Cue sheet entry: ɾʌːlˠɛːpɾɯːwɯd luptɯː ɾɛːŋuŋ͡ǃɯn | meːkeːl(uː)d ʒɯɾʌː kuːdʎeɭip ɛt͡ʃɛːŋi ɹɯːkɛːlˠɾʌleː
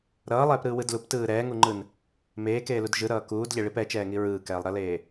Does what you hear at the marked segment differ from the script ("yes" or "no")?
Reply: yes